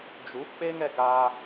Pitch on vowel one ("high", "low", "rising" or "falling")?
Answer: rising